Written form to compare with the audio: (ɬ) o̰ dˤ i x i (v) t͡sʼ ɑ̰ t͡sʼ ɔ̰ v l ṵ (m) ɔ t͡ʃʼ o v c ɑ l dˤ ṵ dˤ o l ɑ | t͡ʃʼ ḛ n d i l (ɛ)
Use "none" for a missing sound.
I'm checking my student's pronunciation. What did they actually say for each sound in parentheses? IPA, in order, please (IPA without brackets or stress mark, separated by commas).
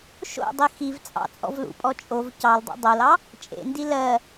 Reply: ʃ, v, pʼ, ɜ